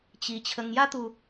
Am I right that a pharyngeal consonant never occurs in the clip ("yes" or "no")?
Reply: yes